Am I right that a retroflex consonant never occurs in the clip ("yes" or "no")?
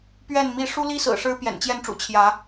no